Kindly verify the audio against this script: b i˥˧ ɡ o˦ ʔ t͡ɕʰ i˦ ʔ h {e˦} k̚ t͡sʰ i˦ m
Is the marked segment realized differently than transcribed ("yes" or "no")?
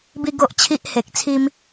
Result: yes